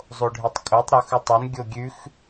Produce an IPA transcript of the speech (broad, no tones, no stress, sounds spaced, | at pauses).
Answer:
zˤ o ɖʱ e tˤ kʼ o tˤ ɾ o x ʉ tˤ o n ɡʲ o ɡʲ ʉ x